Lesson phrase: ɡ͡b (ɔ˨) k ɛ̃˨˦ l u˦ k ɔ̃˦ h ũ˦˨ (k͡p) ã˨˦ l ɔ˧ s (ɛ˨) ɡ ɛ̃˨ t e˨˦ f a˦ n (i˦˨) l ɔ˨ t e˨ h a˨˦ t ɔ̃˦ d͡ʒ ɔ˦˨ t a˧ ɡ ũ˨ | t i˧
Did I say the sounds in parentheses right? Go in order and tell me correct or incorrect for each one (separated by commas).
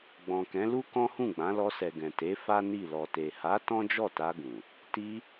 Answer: incorrect, incorrect, correct, correct